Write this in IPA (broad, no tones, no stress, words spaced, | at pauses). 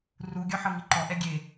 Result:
ru ɡʲɔħɤŋiǃɔ ʔɛɡʲe